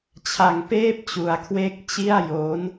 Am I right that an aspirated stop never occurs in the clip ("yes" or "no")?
no